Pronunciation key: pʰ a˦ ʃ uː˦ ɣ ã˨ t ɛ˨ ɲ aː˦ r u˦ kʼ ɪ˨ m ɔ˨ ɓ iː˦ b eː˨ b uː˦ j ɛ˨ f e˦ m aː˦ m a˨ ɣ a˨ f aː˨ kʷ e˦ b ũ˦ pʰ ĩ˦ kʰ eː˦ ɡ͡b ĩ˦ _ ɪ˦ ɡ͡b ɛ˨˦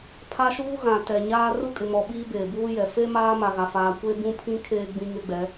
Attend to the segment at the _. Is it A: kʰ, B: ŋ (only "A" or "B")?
B